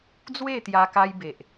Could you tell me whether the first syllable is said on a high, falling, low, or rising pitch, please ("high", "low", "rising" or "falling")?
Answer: falling